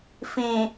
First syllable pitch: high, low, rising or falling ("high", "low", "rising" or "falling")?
low